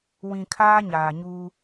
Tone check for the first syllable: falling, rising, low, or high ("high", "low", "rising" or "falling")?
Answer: low